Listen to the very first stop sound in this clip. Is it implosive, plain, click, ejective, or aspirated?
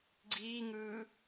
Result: click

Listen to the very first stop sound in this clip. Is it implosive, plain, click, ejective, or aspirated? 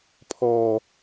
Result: aspirated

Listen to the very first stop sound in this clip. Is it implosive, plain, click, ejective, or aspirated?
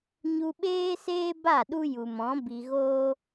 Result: implosive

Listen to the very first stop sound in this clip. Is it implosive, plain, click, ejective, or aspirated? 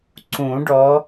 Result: click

